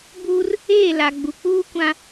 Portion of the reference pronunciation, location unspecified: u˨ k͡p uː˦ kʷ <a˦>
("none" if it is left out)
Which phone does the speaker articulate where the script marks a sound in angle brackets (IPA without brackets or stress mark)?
ã˦